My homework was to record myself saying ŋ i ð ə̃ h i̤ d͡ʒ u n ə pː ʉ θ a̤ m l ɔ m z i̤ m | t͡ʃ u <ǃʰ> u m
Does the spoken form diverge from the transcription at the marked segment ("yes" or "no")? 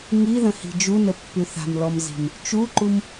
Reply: yes